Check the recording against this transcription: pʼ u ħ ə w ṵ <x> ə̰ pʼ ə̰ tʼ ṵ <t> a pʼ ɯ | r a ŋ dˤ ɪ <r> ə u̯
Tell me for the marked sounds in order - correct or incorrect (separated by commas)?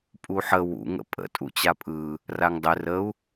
incorrect, incorrect, correct